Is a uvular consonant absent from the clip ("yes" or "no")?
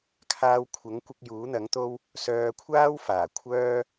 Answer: yes